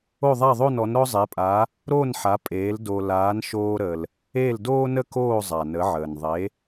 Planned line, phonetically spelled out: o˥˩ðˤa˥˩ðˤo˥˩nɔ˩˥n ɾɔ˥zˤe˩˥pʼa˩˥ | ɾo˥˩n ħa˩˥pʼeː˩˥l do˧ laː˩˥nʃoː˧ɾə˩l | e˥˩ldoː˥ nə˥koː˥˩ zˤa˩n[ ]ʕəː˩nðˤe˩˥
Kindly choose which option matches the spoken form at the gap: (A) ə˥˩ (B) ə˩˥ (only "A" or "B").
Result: B